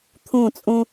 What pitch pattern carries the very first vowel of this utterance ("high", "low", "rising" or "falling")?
falling